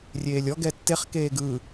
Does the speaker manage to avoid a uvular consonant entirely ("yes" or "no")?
no